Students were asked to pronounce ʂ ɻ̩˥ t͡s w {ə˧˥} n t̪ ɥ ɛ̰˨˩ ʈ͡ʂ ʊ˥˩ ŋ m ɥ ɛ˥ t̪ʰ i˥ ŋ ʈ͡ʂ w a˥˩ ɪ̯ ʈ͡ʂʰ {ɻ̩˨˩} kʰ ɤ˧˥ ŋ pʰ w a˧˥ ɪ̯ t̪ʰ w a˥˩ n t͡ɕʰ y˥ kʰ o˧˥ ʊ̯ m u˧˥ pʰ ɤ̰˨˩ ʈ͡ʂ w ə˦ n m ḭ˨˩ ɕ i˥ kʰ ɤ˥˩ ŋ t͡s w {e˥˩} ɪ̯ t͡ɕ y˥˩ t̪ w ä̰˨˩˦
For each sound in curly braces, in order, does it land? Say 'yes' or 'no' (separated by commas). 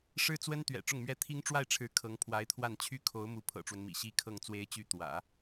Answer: no, no, no